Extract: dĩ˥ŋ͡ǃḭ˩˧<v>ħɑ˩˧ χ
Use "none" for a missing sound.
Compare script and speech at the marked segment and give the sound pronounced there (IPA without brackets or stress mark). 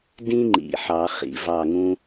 none